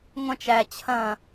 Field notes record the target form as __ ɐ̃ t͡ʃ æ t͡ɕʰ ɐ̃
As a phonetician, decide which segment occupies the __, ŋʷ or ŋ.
ŋʷ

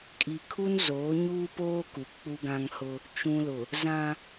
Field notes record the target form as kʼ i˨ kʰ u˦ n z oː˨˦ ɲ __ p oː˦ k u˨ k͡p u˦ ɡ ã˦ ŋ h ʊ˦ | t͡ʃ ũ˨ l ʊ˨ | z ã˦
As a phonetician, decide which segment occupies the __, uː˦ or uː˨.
uː˦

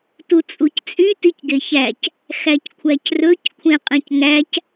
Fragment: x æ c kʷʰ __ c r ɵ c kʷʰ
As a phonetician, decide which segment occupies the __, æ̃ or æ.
æ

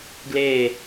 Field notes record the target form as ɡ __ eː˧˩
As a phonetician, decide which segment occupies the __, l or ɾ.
l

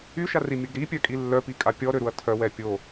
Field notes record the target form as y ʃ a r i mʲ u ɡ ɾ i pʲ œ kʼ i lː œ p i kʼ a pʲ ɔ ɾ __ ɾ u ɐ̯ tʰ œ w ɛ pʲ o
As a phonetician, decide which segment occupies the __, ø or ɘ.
ø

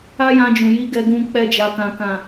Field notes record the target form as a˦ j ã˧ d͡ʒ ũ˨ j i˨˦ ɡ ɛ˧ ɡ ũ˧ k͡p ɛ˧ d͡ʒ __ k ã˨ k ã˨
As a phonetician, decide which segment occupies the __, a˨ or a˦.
a˨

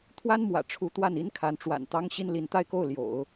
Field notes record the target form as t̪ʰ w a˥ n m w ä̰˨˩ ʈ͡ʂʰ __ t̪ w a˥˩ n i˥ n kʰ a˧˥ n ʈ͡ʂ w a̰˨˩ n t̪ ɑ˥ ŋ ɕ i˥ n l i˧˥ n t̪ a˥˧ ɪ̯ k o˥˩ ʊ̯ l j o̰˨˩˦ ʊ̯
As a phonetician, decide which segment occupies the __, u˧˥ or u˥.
u˧˥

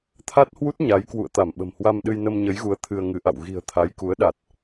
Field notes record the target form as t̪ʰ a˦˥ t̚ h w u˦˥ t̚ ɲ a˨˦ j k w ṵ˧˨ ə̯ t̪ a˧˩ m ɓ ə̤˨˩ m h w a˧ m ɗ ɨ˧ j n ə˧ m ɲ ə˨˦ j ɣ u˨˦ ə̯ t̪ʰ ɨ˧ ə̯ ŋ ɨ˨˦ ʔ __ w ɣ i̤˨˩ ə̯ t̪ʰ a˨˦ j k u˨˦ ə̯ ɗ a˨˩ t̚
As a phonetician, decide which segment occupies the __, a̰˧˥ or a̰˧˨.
a̰˧˨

